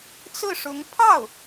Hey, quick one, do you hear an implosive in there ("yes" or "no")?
no